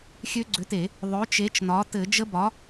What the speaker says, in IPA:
xʲ ø˦˥ ɡ͡ǀ ʏ˨˥ t e˧˩˧ | ðˤ ø˨˥ t͡ʃ e˨˥ t͡ʃ n ɒ˨˥ t ɘ˧˩˧ d͡ʒ ə˦˥ b ɒ˨˥

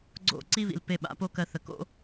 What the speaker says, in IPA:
ɡ͡ǀ o̰˦˨ ǀ i˦ β ḭ˨ l p e˧ ɓ a̰˨˦ p o˦ k ɜ˧ θ ə˨ k o̰˦

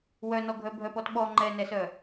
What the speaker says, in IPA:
w œ n ɔ ɡʱ œ bʱ œ p ɔ t ɓ ɔ ŋ͡ǃ ɛ n ɛ s œ

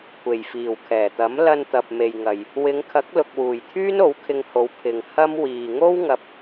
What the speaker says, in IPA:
kʷʰ e˨˩ j f iː˨˩ w kʰ ɛː˨˩ t̪ ɐ˨˥ m l ɐ˧ n t̪ ɐ˨ p̚ m e˨ j ŋ ɐ˨ j | w ɪ˨˧ ŋ kʰ ɐ˨˥ k̚ l ʊ˨ k̚ w uː˨˩ j t̪ʰ yː˥ n o˨˥ w kʰ ɪ˧ ŋ h o˨˧ w pʰ ɪ˨ ŋ h ɐ˥ m w iː˨ ŋ o˥ w ŋ ɐ˧ p̚

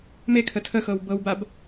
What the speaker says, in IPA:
m e kʰ ə tʰ ə x ɤ w b ɤ w b a b

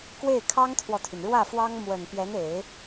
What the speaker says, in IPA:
k w e˥˩ ɪ̯ kʰ ɑ˥ ŋ t̪ʰ w ɔ˨ t̪ʰ y˩ n ɻ w ä˥˩ f w ɑ˥ ŋ m w ə˨˩ n p j ɛ˧˥ n e˨˩˦ ɪ̯

